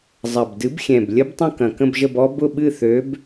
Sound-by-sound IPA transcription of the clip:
zˤ ɐ˨˩ b d ɨ˨˥ b xʲ ɛ̃˨˩ b lʲ ə˦˥ b tˤ ə̃˥˧ k ɐ̃˨˩ k ə̃˥˧ b ʒ ə˥˧ b ɔ˦˥ b ʊ˥˧ ɓ ɨ˥˧ θ ø˨˥ b

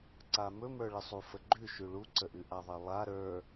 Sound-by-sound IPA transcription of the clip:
ǀ a m ɵ m ə˞ ɭ ə sˤ u f ə ɡ͡ǃ ʉ ʃ ʉ ɭ u ǀ ə ʔ ʉ ʔ a ðˤ e lˠ a ɾ ə˞

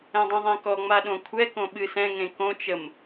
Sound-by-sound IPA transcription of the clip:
ɛ̃ dˤ ɛ̃ ðˤ ẽ k ɔ ŋ͡m a ɗ õ kʷʰ ɛ k õ ɓ ɨ s ɛ̃ ŋ ẽ k õ t͡ʃ ə m

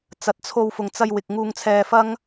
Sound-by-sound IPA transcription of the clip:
t͡s ɐ˨ t̚ t͡sʰ o˧ w f ʊ˨ ŋ t͡s ɐ˧ j w ɪ˨ k̚ ŋ uː˧ ŋ t͡sʰ ɛː˧ f ɐ˥ ŋ

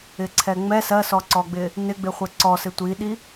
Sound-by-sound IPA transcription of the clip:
ɪ ǀʰ ɛ ŋ͡m ɛ s ɜ s ɔ ǀ ɔ ɡ͡b ɪ | n ɪ ɡ͡b ɪ χʷ ɛ ǀ ɔ s ɪ tʷ i ɗ i

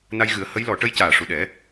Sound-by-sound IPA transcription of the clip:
n a˧ j ɣ ɨ˨˩˦ ə̯ h ə˧˥ j l ɔ˨˩˦ ʈ ə˧˥ j c aː˨˩ ʂ u˨˩ ɗ ɛ˨˩˦

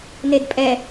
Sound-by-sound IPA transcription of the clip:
n e d pʼ ɛ

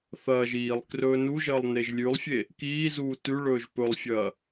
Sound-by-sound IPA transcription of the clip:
θ ɐː ʒ iː lˠ k r ɵː n u ʒ ɐː lˠ n e ʒ lʲ ʉ lˠ fʲ e | k iː z uː t ʉ ɭ ɵː ʒ p ɵ lˠ fʲ ɐː

